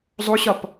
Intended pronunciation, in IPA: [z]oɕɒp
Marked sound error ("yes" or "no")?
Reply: yes